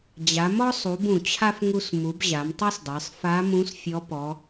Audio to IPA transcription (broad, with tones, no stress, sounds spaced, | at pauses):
d͡ʑ a˩˧ m ɔ˥ sˤ u˩˧ b ũ˩ t͡ɕʰ a˥ f ŋ u˧ s m u˩˧ b ʑ a˩˧ m tˤ ə˞˥ s dˤ ə˞˩˧ sˤ f a˧˥ m ũ˧˥ s fʲ ɔ˧˥ p ɔ˩˧